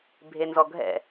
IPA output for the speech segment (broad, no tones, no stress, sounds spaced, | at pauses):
bʱ e n z ɔ ɡʱ ɛ̰